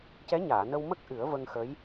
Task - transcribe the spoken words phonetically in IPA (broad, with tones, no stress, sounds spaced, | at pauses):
c ɛ˧˥ ɲ aː˨˩˨ n ə˧ w m ə˦˥ k̚ ʔ ɨ˨˩˦ ə̯ v ə˧ ŋ x ə˧˥ j